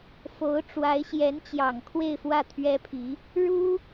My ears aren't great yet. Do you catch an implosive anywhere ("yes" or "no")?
no